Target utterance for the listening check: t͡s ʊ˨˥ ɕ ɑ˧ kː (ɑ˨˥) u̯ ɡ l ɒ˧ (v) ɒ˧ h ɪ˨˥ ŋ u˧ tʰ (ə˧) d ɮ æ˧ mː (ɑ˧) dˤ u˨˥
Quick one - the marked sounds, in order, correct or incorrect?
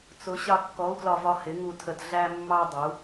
incorrect, correct, correct, correct

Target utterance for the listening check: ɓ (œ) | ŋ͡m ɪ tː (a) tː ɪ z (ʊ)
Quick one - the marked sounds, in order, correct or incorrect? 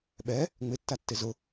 incorrect, correct, correct

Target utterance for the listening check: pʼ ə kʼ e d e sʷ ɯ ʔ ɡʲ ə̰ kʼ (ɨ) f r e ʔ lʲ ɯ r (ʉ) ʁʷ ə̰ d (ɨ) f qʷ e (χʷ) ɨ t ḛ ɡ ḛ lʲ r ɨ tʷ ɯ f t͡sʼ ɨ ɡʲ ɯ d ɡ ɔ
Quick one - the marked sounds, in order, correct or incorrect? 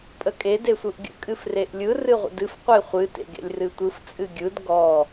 correct, incorrect, correct, correct

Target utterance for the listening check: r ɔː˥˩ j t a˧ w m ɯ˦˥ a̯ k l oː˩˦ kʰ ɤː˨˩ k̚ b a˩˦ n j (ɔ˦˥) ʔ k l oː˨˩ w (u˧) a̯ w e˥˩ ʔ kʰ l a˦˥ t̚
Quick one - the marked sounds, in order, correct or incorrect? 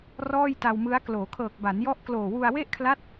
correct, correct

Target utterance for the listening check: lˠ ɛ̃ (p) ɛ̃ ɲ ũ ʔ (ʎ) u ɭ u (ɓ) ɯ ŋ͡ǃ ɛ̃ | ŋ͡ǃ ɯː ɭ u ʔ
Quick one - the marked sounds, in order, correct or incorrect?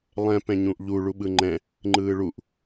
correct, correct, correct

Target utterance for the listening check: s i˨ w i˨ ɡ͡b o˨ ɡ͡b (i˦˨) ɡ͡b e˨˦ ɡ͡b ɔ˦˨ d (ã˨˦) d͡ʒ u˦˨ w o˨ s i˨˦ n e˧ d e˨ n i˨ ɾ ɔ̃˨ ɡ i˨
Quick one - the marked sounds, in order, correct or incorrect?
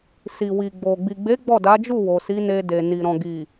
incorrect, incorrect

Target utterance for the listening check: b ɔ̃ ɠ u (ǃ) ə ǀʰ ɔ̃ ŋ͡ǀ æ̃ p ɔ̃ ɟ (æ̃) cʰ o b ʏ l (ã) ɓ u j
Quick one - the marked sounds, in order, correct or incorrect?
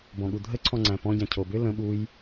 incorrect, correct, incorrect

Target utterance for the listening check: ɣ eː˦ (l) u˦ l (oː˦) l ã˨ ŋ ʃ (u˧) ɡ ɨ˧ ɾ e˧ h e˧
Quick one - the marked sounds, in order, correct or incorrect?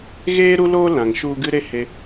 incorrect, correct, correct

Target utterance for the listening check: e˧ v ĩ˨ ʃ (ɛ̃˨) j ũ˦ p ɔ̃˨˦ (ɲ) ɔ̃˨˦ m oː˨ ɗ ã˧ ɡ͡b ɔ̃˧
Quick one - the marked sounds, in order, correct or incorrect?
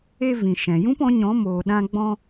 correct, correct

